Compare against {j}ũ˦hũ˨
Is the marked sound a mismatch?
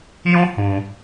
no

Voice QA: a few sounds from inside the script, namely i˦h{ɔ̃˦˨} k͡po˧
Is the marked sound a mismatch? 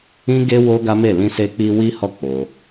yes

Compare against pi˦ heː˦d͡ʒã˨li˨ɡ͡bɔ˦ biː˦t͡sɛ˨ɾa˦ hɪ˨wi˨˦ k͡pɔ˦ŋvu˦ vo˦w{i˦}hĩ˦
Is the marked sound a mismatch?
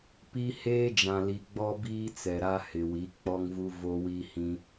no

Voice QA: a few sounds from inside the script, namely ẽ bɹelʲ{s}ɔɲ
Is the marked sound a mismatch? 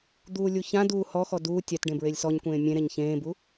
no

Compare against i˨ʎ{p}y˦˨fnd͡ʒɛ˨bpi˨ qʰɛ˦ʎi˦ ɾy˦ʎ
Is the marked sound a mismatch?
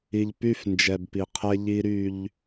no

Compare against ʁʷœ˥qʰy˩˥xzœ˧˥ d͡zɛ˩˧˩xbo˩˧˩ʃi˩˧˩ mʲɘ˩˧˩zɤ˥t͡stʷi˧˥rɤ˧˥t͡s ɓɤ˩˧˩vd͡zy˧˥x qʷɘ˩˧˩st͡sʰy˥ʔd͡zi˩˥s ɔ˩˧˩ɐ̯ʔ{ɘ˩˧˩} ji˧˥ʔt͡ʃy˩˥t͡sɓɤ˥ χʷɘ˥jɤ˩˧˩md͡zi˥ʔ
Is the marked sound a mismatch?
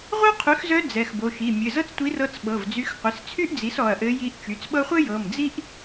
yes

